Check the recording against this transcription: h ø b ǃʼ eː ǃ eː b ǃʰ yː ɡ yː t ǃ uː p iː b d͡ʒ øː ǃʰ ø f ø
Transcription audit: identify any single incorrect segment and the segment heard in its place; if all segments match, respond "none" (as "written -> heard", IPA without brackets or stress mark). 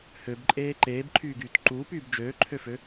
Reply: iː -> yː